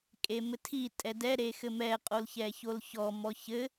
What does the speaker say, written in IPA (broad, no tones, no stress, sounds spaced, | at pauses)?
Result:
kʼ e m ɘ tʰ i tʼ ɛ d ɛ ɾ e x ɘ m ɛ qʼ o l ç ɛ ç o l ç ɔ m ɔ ç ɘ